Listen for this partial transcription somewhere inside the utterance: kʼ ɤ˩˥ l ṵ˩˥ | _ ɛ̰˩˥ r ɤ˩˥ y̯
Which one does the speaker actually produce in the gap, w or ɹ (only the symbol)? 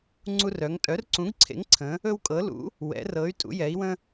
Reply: w